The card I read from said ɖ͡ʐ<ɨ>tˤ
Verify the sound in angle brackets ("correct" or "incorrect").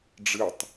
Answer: correct